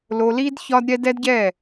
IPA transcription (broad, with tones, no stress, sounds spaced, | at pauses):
l o˧ l i˦ d ç ɒ˦ d ɾʲ ɛ˦ d ɛ˦ d ɟ ɛ˦˨